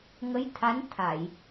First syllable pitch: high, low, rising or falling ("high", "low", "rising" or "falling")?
rising